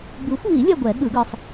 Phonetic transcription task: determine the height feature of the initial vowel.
high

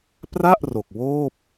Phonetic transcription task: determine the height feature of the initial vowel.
low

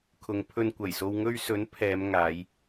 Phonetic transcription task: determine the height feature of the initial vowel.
high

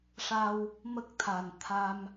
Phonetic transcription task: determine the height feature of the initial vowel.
low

